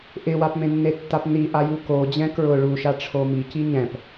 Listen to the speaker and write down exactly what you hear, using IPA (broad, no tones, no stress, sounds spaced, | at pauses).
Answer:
ʔ ɪ w a p m ẽ nː e tː a p n i ʔ a j u k o d͡ʑ ɛ̃ k ɹ ʊ ɭ u ʃ a ʈ͡ʂʰ o m i c i ɲ ɛ̃ p